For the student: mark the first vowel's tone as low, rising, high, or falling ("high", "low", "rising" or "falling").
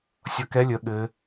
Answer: rising